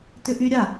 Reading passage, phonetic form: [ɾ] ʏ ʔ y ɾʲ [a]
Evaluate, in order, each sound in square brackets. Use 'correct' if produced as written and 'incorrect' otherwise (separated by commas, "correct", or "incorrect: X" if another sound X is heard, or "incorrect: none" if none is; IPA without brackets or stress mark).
incorrect: t, correct